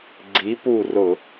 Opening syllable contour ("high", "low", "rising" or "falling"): rising